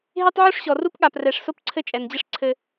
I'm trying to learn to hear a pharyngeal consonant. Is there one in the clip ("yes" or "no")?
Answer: yes